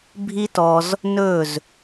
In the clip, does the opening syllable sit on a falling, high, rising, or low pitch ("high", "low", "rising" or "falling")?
high